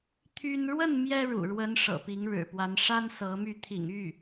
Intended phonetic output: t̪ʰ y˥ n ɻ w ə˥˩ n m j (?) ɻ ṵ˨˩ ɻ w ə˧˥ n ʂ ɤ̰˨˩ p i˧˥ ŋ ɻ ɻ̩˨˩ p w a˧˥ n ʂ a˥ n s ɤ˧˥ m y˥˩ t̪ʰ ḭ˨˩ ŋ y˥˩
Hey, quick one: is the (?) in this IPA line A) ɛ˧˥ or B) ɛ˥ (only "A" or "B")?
B